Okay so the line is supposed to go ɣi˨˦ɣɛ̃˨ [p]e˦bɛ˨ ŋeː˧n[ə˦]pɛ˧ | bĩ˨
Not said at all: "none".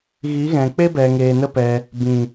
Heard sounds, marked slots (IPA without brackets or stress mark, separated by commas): k͡p, ə˦